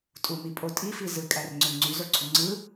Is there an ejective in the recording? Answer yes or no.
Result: yes